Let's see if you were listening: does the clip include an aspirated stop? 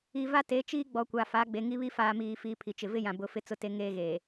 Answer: yes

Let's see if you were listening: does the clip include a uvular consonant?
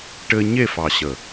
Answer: no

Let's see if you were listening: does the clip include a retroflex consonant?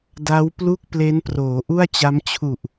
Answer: no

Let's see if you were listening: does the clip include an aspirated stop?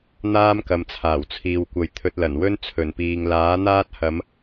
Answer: yes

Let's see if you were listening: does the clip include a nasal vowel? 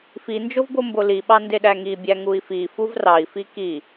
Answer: no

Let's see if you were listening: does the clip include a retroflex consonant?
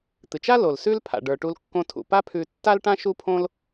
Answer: yes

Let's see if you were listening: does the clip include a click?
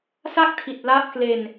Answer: no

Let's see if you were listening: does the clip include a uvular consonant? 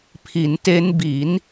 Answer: no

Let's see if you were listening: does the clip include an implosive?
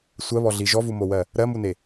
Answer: no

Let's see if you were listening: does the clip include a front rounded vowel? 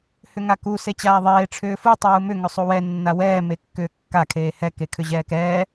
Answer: yes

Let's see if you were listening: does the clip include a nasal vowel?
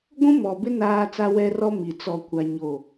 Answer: yes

